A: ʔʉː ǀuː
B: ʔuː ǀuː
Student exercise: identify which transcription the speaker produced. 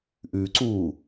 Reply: A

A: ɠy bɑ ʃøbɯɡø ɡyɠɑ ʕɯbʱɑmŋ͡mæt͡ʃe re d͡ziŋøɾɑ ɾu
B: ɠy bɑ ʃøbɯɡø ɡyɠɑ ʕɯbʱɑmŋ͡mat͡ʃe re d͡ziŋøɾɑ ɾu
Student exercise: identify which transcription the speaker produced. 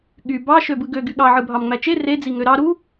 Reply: A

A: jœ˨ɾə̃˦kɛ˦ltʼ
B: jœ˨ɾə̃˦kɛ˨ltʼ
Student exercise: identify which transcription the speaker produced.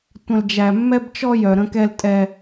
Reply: A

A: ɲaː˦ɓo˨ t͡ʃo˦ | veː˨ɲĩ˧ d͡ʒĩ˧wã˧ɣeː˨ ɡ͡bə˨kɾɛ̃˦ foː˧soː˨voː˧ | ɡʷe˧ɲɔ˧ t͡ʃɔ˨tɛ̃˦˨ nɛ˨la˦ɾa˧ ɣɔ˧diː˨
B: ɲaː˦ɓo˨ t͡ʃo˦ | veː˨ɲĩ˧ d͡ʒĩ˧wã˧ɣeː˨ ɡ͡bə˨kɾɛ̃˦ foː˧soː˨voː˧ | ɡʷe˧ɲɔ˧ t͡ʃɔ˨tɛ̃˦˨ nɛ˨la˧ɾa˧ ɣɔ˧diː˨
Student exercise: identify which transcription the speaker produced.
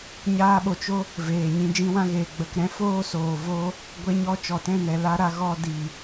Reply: B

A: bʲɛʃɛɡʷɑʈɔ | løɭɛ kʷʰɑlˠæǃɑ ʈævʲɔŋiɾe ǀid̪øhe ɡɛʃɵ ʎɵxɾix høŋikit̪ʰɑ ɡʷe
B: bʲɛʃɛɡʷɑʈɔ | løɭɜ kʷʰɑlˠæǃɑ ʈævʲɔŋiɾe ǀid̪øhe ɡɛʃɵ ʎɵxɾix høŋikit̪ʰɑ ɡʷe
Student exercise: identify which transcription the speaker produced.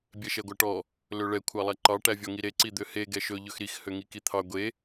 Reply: A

